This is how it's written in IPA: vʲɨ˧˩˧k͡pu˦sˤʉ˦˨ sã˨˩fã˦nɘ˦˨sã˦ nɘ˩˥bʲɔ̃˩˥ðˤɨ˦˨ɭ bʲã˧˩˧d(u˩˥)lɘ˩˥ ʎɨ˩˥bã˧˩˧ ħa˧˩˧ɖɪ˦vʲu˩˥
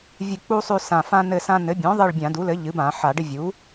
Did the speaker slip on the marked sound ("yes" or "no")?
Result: no